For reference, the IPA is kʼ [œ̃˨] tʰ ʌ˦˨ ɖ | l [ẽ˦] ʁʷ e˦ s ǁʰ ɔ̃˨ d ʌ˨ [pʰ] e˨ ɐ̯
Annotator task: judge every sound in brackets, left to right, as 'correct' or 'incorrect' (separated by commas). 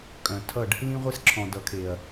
correct, incorrect, incorrect